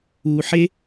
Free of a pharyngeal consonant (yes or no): no